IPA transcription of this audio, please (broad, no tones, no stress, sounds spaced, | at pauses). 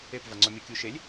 e p v a ŋ͡ǀ ɔ mʲ o kʲ u ʃ e lʲ